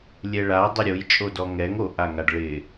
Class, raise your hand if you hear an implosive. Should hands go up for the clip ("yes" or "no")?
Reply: no